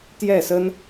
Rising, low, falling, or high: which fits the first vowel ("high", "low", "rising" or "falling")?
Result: falling